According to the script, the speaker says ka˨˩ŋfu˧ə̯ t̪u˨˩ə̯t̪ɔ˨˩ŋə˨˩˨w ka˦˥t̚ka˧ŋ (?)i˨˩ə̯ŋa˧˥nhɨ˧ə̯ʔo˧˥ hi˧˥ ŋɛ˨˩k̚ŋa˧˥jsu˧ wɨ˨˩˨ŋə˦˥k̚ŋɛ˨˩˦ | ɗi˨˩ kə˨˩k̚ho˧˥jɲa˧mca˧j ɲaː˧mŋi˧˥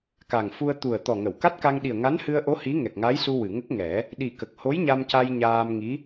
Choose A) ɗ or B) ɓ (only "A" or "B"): A